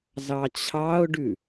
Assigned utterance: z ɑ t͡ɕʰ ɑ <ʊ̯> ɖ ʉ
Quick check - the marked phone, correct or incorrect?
correct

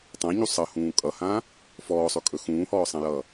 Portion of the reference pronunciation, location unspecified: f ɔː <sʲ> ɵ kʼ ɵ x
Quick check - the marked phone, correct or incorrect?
incorrect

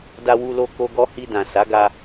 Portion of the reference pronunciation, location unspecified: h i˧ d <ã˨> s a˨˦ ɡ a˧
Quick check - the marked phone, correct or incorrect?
correct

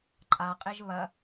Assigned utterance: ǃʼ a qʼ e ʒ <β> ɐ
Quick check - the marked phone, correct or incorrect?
correct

